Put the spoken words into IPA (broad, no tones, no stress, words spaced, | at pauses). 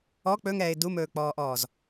ɔ k͡pɵŋɛːɪ̯ dumɵːk͡pɔːʔɔːz